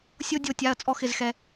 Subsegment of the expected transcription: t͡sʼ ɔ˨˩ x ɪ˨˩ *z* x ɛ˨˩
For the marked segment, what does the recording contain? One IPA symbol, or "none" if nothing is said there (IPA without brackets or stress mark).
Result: z